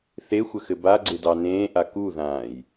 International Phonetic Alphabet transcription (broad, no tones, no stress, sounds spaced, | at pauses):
θ e xʷ ə x ɘ b a ɡ͡ǀ ɪ d ɑ n ẽː ʔ a k u ð ãː j